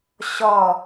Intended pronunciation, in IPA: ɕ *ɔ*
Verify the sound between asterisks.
correct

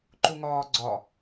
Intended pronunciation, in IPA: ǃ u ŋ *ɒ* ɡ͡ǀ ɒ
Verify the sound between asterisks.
incorrect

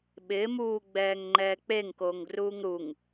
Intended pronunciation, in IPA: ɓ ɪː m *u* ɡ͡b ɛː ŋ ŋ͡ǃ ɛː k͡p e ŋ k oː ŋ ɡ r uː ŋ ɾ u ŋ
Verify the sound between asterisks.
incorrect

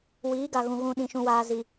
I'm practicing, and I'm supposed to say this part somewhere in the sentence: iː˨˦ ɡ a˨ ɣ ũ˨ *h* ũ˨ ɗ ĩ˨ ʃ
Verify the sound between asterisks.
incorrect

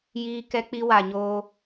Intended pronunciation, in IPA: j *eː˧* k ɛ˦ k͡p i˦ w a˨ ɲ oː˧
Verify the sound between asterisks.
incorrect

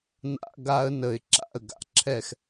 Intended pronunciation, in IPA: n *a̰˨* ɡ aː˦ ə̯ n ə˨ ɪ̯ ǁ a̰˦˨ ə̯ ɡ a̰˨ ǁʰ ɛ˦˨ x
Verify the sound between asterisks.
incorrect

